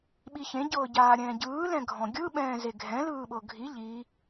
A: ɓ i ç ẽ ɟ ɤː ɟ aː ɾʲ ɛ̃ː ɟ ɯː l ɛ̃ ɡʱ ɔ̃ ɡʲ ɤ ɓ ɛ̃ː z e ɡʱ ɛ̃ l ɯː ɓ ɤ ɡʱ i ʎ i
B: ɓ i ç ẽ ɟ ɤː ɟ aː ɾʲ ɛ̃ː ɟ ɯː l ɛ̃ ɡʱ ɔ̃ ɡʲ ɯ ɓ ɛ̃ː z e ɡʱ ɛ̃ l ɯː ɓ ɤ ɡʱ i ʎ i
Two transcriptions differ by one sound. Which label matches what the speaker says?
B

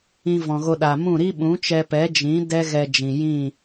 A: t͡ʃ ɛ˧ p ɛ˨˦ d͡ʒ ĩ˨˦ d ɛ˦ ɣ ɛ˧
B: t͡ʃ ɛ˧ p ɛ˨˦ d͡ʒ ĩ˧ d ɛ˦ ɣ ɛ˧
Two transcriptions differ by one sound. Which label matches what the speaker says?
A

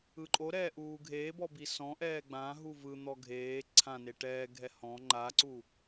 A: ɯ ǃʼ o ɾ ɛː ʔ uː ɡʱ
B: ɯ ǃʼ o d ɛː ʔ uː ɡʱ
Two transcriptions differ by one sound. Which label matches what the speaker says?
A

